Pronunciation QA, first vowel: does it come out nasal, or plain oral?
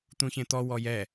nasal